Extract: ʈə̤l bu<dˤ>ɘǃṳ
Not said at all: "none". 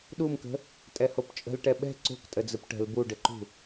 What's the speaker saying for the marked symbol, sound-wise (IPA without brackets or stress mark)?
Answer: ɖ